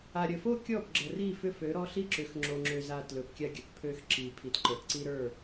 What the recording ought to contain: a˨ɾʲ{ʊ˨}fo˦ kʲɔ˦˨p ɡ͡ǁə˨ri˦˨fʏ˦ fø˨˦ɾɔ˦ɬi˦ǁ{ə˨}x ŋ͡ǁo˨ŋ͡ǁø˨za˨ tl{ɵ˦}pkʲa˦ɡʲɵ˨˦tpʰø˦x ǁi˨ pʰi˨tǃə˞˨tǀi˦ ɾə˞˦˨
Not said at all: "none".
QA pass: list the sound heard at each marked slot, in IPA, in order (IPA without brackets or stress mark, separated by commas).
ə˨, ʏ˨, ɵ˨